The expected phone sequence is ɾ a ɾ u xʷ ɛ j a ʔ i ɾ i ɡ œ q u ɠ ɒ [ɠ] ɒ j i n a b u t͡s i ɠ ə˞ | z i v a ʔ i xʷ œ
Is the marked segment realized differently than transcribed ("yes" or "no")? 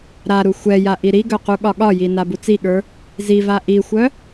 no